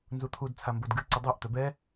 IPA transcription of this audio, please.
n z u t̪ʰ u d t͡sʰ a m b o d ɡ ɨ ǀ ʊ dˤ ə˞ ʔ t̪ œ b ɛ

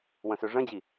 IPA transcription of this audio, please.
w ə̃ s ø ʐ ə̃ d͡ʑ i

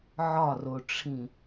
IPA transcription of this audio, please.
ʕ ɒ r o ʈ͡ʂʰ ĩ

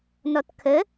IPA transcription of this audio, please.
n ɔ t kʰ ə

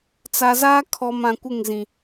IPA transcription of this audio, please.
t͡s a˨ z aː˦ kʰ ɔ˨ m ã˨ kʷ ɪ˦˨ ŋ z ĩ˨

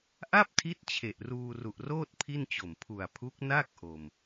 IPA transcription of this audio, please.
ʔ a˥˩ p̚ tʰ i˦˥ t̚ t͡ɕʰ e˨˩ ʔ r uː˧ r u˨˩ ʔ r oː˥˩ t̚ pʰ i˥˩ n t͡ɕ o˨˩ m pʰ u˨˩ a̯ pʰ u˦˥ k̚ n a˥˩ k̚ ʔ o˧ m

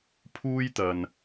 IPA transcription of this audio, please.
pʰ uː˥ j t̪ ɐ˧ n

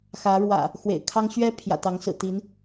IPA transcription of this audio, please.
x ä˨˦ ɻ w ä̰˨˩ | x w ḛ˨˩ ɪ̯ kʰ ɑ˦ ŋ ɕ ɥ ɛ˦ pʰ j ä̰˨˩ t̪ ɑ˨˦ ŋ s ɹ̩˨˩ t̪ i˨˦ n

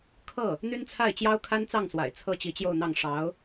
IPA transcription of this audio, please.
kʰ ɤ˥˩ | n̪ y˥ n t͡sʰ a˥˩ ɪ̯ t͡ɕ j ɑ˥ ʊ̯ kʰ a˥ n t͡s ɑ˥˩ ŋ s w a̰˨˩ ɪ̯ t͡sʰ ɤ˥ t͡ɕ i˧˥ t͡ɕ j o˥˧ ʊ̯ n̪ ɑ˥˩ ŋ ʂ ɑ˧˥ ʊ̯

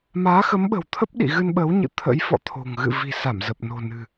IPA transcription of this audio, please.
m aː˨˦ x ə˨˦ m ɓ ə̤˨˩ w t̪ʰ ə˦˥ p̚ ɗ ḭ˧˨ ɣ ɨ˧ n ɓ əː˨˦ w ɲ ɨ̰˧˨ t̪ʰ ə̰˧˥ j f ɔ̰˧˨ t̪ʰ o̤˨˩ ŋ ɣ ɨ̰˧˨ v i̤˨˩ s a˧˩ m z ə˨˩ p̚ n o̤˨˩ n ɨ̤˨˩

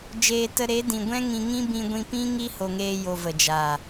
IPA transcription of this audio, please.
d͡ʒ eː˧ t ə˧ ɾ e˨˦ d ĩ˨ ɡʷ ɛ̃˦ ŋ ĩ˧ ŋ ĩ˦ b ĩ˧ ɡʷ ĩ˧ p ĩ˦ ŋ i˦ h o˧ ŋ eː˦ j o˧ v ə˨ d͡ʒ aː˨

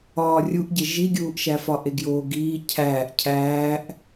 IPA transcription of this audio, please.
ɒː rʲ u ʔ ɟ e ʒ i ɡʲ uː ʔ ʃ æ f ɒ ʔ e ɡ j oː ɡ iː cʰ æː ʔ cʰ æː ʔ

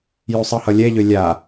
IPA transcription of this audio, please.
j u sˤ ʌ h ʌ lʲ ɛ ʎ ø lʲ a

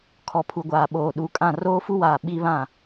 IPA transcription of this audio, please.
kʰ ɔ˨ pʰ u˨ ɡʷ aː˨ ɓ oː˨ ɗ u˨˦ kʼ ã˦˨ r oː˦ f u˦ w aː˨ ɓ i˦ β ã˦˨

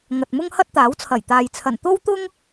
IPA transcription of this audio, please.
ŋ ɐ˨ t̚ m ʊ˥ ŋ h ɐ˥ t̚ t̪ aː˨˥ w t͡sʰ ɐ˨˩ j t̪ aː˨ j t͡sʰ ɐ˨˩ n t̪ o˥ w t̪ ʊ˥ ŋ

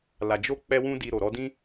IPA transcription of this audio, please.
l a˨ d͡ʒ o˧ k͡p ɛ˧ w ũ˧ d i˨ ɾ o˨ ɾ ɔ˧ d ĩ˦

